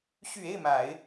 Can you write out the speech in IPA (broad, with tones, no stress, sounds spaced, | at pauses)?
ɕ y˨˩ e˥˩ ɪ̯ m a˨˩˦ ɪ̯